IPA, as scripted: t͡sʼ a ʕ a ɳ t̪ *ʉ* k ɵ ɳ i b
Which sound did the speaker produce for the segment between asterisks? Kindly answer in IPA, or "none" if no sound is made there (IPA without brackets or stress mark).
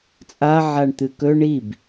ɨ